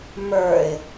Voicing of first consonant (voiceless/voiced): voiced